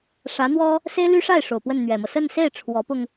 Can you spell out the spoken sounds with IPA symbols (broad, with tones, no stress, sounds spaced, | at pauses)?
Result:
ʂ ä˧˥ n̪ w ɔ˥ | s e˥ ɪ̯ l y˥ ʂ a˥˩ ɪ̯ ʂ o˨˩ ʊ̯ p w ə˥˩ n n̪ ɥ ɛ˨˩ m ɤ˦ s ə˥˧ n s e˥˩ ɪ̯ ʈ͡ʂʰ w ɔ˧˥ p ʊ˧ ŋ